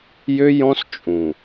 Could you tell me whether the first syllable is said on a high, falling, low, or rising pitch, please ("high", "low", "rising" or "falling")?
high